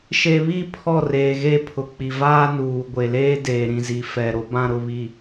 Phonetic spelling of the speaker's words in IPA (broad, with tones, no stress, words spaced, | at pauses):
ʃe˨βi˦˨ pʰɔ˦˨ reː˨ɣe˦pʰʊ˨k͡pi˨ vaː˦nuː˨ɡʷe˨leː˦ deː˨ ɾĩ˨zi˨fɛ˨ ɾo˦bã˦ɾʊ˦ βi˦